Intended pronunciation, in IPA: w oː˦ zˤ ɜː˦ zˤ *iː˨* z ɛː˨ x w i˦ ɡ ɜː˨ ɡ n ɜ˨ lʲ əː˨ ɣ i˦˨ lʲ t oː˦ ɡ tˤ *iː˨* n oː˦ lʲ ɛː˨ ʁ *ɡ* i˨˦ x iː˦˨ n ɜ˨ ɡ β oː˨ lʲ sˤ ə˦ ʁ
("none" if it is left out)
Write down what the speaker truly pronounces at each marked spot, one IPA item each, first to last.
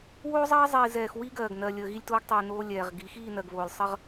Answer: iː˨, iː˨, ɡ

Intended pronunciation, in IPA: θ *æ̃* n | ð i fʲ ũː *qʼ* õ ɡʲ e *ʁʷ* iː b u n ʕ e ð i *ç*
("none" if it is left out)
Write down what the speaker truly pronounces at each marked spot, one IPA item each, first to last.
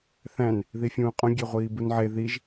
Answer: æ̃, qʼ, ʁʷ, ʒ

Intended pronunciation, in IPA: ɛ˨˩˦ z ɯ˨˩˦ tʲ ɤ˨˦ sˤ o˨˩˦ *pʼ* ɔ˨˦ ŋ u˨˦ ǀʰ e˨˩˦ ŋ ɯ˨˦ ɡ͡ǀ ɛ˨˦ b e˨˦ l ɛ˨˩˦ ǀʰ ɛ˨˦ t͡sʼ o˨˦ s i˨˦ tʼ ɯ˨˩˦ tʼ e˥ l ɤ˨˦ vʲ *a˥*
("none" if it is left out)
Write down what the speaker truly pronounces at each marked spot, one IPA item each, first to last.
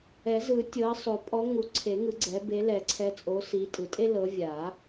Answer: pʼ, a˨˩˦

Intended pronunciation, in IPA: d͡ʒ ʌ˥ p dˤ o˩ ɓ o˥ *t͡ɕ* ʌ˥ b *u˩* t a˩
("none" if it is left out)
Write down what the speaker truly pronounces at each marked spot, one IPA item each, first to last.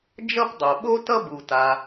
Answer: t, u˩

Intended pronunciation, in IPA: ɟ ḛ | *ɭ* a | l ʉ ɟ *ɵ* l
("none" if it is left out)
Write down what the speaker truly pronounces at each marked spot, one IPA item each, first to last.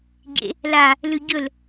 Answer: l, ɵ

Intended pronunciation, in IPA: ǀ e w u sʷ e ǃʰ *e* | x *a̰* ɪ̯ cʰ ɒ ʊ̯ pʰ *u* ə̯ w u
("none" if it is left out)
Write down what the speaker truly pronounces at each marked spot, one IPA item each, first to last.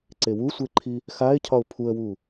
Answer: i, a, u

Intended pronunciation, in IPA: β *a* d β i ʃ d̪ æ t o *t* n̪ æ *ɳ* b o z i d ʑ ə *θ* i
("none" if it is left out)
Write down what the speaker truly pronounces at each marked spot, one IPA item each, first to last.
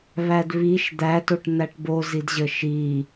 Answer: æ, ʈ, ʈ, ʃ

